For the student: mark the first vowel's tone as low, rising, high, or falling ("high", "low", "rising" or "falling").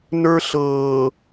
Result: high